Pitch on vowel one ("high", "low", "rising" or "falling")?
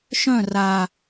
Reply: falling